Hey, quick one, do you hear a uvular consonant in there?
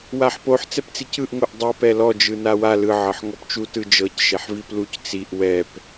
no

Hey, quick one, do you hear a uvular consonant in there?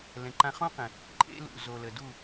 yes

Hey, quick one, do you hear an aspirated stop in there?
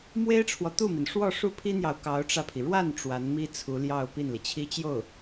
yes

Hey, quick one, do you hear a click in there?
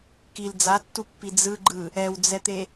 yes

